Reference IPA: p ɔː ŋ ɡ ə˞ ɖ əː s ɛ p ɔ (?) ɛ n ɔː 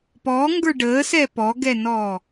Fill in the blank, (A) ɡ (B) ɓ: A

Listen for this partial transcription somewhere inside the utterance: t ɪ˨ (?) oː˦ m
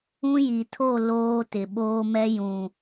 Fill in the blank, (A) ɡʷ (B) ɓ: B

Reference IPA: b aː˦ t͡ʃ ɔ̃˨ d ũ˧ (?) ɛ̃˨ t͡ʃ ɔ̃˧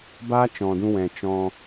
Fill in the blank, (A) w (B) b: A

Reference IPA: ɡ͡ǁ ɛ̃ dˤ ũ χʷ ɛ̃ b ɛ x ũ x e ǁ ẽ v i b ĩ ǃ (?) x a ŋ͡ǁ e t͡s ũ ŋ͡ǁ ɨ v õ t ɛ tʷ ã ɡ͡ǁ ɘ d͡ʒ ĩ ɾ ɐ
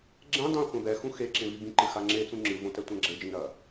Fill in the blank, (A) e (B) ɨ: B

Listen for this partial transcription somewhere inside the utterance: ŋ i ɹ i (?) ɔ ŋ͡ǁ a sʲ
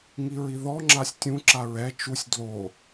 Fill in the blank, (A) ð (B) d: A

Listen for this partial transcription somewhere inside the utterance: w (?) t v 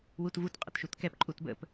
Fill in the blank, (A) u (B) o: A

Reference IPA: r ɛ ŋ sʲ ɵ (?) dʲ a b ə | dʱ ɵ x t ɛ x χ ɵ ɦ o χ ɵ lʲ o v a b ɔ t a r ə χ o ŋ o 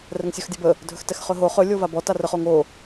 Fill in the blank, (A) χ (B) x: B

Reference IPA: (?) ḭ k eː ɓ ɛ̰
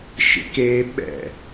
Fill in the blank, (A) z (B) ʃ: B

